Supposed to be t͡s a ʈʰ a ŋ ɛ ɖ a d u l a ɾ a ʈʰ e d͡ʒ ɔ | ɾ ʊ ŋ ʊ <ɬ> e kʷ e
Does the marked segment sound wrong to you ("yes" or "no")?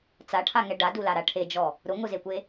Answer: yes